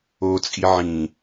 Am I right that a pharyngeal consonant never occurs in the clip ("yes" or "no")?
no